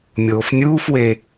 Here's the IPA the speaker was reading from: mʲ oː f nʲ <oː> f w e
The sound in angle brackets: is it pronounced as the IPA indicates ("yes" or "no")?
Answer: no